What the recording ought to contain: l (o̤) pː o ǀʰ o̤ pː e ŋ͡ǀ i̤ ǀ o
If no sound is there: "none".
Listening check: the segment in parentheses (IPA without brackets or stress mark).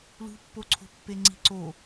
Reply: ṳ